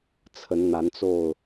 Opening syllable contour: rising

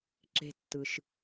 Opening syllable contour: low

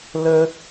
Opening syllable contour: high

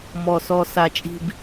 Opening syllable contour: low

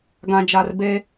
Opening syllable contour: low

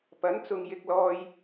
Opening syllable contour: rising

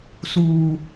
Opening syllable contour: low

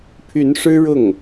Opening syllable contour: rising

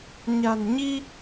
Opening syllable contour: low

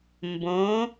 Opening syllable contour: rising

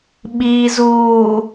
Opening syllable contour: low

